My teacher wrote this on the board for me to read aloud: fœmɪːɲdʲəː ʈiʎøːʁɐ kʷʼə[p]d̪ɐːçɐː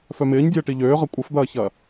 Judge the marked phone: incorrect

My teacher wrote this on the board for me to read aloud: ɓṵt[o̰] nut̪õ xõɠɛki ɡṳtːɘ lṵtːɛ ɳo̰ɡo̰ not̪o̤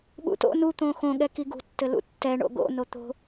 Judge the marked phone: correct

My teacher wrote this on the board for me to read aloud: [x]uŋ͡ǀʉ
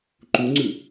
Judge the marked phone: incorrect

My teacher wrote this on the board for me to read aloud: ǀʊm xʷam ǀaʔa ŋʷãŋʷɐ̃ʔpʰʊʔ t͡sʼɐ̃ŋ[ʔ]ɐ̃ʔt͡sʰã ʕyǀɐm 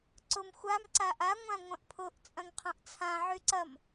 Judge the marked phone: incorrect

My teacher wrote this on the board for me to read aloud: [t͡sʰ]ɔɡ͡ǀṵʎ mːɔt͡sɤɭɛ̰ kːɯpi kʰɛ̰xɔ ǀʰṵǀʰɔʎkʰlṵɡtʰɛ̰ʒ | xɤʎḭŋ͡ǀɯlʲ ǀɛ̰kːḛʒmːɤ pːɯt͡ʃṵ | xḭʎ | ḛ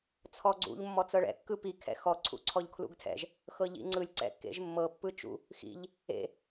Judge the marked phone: correct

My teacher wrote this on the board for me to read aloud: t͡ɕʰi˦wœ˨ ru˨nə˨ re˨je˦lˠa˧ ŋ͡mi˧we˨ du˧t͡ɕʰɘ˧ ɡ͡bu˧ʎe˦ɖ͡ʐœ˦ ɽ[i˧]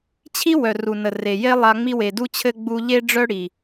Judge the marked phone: incorrect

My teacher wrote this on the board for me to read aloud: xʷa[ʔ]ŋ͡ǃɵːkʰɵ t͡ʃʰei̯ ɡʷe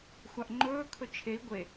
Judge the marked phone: correct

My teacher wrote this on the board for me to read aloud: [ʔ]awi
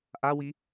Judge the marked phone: correct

